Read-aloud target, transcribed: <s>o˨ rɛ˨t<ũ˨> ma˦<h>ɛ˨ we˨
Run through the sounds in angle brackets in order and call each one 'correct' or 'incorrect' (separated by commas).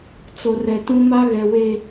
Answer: incorrect, incorrect, incorrect